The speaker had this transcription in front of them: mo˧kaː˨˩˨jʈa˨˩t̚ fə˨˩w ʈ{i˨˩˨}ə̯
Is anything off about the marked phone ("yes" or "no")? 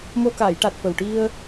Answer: yes